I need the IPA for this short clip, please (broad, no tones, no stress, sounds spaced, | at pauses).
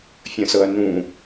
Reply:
fʲ ə̃ s ɤ ɐ̯ n ũ